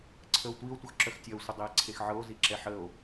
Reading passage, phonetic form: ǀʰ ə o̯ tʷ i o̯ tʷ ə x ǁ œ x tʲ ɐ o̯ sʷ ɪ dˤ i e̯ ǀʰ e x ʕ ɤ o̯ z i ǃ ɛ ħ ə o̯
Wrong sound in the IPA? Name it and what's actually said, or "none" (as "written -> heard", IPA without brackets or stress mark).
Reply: ǃ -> ǁ